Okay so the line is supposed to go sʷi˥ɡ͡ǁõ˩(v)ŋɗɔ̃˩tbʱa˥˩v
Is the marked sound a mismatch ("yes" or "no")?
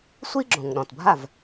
yes